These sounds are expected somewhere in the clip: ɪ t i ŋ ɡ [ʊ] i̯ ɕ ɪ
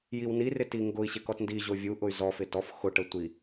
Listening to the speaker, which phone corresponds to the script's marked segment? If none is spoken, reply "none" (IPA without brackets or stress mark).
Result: ʊ